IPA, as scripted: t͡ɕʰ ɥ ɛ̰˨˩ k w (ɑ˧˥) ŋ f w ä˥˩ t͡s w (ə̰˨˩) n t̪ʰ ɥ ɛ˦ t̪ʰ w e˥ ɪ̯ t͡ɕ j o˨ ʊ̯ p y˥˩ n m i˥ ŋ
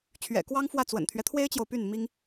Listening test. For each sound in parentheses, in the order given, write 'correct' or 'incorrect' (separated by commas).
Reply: incorrect, correct